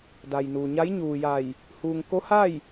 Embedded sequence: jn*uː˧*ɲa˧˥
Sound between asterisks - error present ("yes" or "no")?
yes